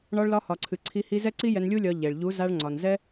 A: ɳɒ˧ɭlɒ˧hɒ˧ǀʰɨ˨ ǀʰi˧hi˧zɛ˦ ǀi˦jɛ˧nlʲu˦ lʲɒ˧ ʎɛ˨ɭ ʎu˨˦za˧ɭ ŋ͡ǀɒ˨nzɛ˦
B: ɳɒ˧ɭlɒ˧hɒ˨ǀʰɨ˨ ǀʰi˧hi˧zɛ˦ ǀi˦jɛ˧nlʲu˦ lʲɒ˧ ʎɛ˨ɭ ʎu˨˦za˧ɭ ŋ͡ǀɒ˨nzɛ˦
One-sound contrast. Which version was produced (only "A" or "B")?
B